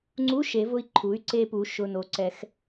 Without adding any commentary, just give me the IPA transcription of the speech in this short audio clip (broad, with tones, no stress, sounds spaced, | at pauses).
ŋ͡ǀ u˧˥˧ ʃ e˩˧ v ʊ˧ i̯ ǃʰ u˩˥ y̯ ǀ e˧ p u˩˧ ʃ ʊ˩˧˩ n o˩˥ ǀ ɛ˩˧ x